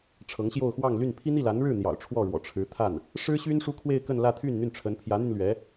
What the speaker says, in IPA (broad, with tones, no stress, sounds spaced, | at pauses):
ʈ͡ʂʰ ɤ˧˥ ŋ ɕ j o˥˧ ʊ̯ x w ɑ˥˧ ŋ l y˥˩ n pʰ i˥ n̪ i˥˩ l a˧˥ n ɻ ɻ̩˥˩ n̪ j ɑ̰˨˩ ʊ̯ ʈ͡ʂʰ w ɔ˥˩ ɻ w ɔ̰˨˩ ʈ͡ʂʰ ɻ̩˧˥ t̪ʰ a˥˩ n | ʂ ɻ̩˥ ɕ y˥ n ʂ u˥ kʰ w e˥˧ ɪ̯ k ə˥˧ n l ä˥˧ t̪ʰ y˥˧ n n̪ y˥˩ n ʈ͡ʂʰ ə˧˥ n pʰ j ä˧˥ n̪ y˧ n l ɥ ɛ˧˥